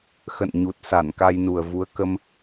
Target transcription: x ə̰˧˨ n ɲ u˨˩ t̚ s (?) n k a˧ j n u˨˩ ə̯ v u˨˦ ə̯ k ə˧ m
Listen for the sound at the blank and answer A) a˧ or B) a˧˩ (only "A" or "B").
B